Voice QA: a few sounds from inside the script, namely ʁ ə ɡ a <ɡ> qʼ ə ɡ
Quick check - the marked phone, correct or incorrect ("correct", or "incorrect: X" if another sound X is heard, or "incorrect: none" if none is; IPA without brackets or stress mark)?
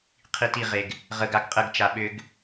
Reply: correct